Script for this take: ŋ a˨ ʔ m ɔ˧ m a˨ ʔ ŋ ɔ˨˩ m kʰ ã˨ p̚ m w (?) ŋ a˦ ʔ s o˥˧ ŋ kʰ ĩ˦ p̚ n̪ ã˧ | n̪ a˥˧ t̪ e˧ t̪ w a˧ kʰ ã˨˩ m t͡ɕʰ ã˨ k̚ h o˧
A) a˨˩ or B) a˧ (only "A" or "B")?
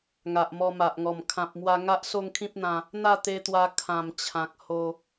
B